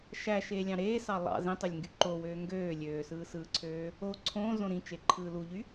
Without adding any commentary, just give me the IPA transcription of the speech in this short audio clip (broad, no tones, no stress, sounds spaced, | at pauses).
ʃ æ ʃ eː lʲ ɑ̃ ɾ eː s ɑ lˠ ɑ̰ z ĩ tˤ ø lʲ ŋ ɡ y ǃ o w øː ŋ ɡ øː lʲ øː s ɯː s ɯː ǀʰ øː | o ǀʰ õː z õ ɾ ĩ t͡ʃ e ǃʰ ɯː l u ʎ y